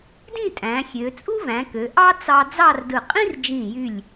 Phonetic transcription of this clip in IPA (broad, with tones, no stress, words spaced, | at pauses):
dĩ˥˧tʼæ̃˩˧ xʲø˩˧ t͡sʼu˥væ̃˩˧kø˩˧ ʔɑ˥ t͡sɑ˧ d͡zɑ˥˧rdɯ˧˩ qʼĩ˥rd͡ʒĩ˧˩jy˧˩lʲ